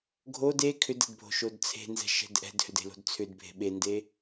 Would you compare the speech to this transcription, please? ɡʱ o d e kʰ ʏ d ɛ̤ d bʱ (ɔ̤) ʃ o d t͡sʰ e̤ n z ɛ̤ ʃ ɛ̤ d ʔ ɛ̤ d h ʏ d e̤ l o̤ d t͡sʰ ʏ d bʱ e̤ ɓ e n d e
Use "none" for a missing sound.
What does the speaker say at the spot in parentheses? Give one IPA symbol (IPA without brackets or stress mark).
o̤